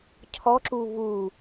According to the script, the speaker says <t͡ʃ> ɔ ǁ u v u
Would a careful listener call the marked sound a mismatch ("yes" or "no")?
yes